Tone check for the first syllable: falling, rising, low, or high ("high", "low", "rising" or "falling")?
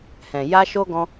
low